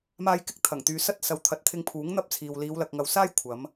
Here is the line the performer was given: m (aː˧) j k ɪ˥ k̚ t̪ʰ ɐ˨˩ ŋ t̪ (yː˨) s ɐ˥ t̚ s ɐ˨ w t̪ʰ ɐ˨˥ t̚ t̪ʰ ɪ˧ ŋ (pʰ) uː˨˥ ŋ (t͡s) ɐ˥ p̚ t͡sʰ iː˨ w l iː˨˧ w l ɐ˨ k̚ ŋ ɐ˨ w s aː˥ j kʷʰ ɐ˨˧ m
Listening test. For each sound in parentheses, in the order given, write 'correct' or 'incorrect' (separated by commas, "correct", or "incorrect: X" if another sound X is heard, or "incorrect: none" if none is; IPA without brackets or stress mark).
correct, incorrect: yː˨˧, correct, incorrect: n̪